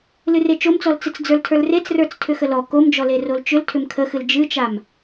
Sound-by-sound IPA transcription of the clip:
l ɨ r e t͡ʃ o m t͡s ɔ l t͡s ɨ t͡s d͡z ə˞ l tʰ ə˞ l r e t͡s r ə˞ t͡s tʰ ʏ x ə l ɔ k o m d͡ʒ ɔ l e r o l t͡ʃ ʏ l tʰ ʏ m kʰ ə x ɨ l d͡ʒ ɨ t͡ʃ a m

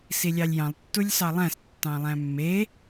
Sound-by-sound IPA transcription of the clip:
s i lʲ ɑ lʲ j ɑ̃ lˠ tː u lʲ s ɑ lˠ æ̃ s tː ɑ̃ lˠ æ̃ mː e

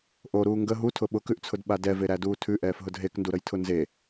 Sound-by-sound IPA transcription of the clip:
ʔ o ɾ uː ŋ ɡ ə ɦ u tʰ ʊ ɓ ʊ k ʉ ʔ t͡sʰ ʊ d ɓ a d ɛ v e ɾ æ d uː tʰ ʉ ʔ ɛː f ɦ ʊ d ɦ e k n d u ɾ ə j tʰ ʊ n z e

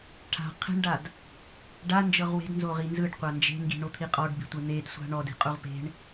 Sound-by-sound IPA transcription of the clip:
ʈʰ a̤ qʰ e̤ ɳ ɖ a d | ɖ a n d͡ʒ ɤ ʁ w e̤ d n z o ʁ i n z ɯ ɖ qʷ a n d͡ʒ e̤ ŋ ɡ i̤ ɳ o t̪ʰ i qʼ ɔ ɖ b i̤ tʷ e n̪ e d sʷ a̤ ɳ ɔ d i̤ qʼ u ʁ p e̤ ɳ

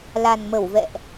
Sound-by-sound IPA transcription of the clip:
l a˨˩ n m ə˧˩ w v ɛ̰˧˨ ʔ

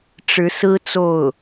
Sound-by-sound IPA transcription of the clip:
ʈ͡ʂ ɻ̩˧˥ s ɹ̩˥ t͡s o˥˩ ʊ̯

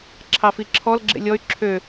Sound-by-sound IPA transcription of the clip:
ǁʰ ɑ f i ǁʰ ɔ l ɡ͡ǁ ḛ lʲ ɔ y̯ ǁʰ ø

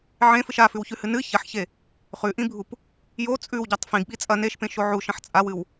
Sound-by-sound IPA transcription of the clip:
ʕ ẽ f ɨ ʃ a f ʉ w ç ʉ h ɨ n ɨ ç ɐ ħ ç e | χ ʉ ʔ ĩ bʱ u p | j o t͡sʼ ʉ w ɟ a tˤ f ĩ ɡ ɓ i t͡sʼ ɐ n e ʃ p ẽ ʃ o ʕ u ʃ ɐ̃ ħ t͡sʼ a w ɨ w

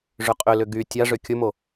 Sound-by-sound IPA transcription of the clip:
ʐ ʏ qʼ ʏ l ʏ ɡ y tʲ a ʐ ʏ kʲ ʊ m o

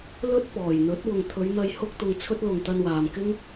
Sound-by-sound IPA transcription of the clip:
l ɵ˥ t̚ p ɔː˨˩ j n̪ ɵ˨˥ t̚ w ʊ˨ ŋ t̪ʰ ɵ˨˧ ɥ n̪ ɐ˧ j h ʊ˥ k̚ t̪ ʊ˧ ŋ t͡sʰ ɵ˥ t̚ l ʊ˨ ŋ t̪ ɐ˧ n w aː˨ m k ɪ˥ ŋ

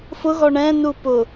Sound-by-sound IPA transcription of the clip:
f ʊ ɣ ɔ ɳ ɛ̃ n u p ʊ

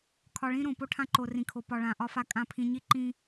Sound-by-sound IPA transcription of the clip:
kʰ ɒ˨ ɭ ĩ˦ ɾ õ˨ p o˦ ʈʰ ã˦ ǃ o˨ r ĩ˨ kʰ o˨ p ɒ˨ ɭ ã˨ ʔ ɒ˦ f a˦ kʼ ã˦˨ pʰ ĩ˦ ɲ i˦ ǃ ĩ˦

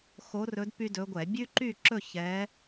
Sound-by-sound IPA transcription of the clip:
x o˧˥ r ɵ˧˥ d p y˥ d ɵ˧˥ ɡʷ ɛ˧˩˧ bʲ ʉ˥ ǃ y˥˧ ǁ ɵ˥˧ ç ɛ˧˥

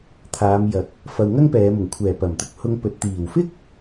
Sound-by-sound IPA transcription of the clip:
t̪ʰ aː˨˧ m j ɐ˨˥ k̚ | f ɐ˨ w ŋ ɐ˥ ŋ p ɛː˨˧ m ʊ˨˩ ŋ kʷʰ ɛː˨˩ p ɐ˨˩ m t̪ ʊ˧ k̚ h ʊ˧ ŋ p ɵ˨ t̚ t̪ iː˨˩ w f ɪ˥ k̚

